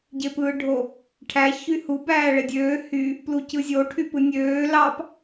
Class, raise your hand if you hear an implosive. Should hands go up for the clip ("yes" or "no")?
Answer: no